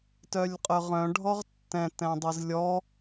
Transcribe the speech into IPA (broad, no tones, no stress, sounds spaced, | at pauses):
t œ lʲ qʼ œ ʁ œ̃ ɖʱ ɔ ʁ tː ɛ̃ t ɛ̃ dˤ ɨ z lʲ ɔ